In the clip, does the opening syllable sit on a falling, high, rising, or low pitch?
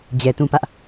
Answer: low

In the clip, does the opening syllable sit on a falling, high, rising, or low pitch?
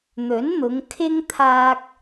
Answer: rising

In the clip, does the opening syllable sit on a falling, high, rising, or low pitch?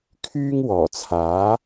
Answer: high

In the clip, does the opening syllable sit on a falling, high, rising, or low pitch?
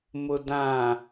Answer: low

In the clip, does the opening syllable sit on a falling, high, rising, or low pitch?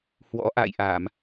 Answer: rising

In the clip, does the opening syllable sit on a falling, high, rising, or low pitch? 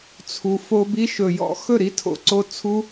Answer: low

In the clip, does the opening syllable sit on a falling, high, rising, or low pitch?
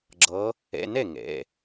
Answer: rising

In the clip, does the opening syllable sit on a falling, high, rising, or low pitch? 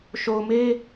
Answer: low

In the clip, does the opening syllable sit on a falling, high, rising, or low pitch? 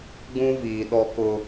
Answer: high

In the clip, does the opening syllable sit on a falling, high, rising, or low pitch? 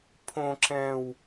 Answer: low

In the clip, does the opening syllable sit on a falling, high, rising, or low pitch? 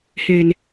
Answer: low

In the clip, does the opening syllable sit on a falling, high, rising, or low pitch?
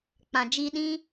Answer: low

